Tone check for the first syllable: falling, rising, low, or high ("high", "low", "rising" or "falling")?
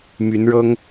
rising